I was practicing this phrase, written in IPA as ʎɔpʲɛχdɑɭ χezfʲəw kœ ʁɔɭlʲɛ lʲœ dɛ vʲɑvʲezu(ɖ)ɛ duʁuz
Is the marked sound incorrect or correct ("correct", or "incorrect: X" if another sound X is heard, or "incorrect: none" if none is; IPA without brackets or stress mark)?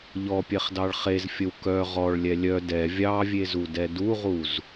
incorrect: d